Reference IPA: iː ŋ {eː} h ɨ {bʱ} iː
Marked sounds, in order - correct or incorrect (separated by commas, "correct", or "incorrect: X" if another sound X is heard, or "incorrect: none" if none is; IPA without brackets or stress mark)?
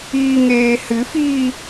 correct, incorrect: f